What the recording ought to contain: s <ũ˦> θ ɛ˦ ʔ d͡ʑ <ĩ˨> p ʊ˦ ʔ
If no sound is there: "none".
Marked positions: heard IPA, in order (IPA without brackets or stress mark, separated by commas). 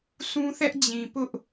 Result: ũ˦, ĩ˨